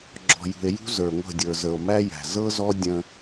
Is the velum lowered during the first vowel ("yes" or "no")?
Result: no